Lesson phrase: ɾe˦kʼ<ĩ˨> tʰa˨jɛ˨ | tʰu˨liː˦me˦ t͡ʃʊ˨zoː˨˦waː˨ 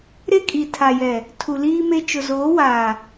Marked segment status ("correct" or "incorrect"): incorrect